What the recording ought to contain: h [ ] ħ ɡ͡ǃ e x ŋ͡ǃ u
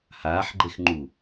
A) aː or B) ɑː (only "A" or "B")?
A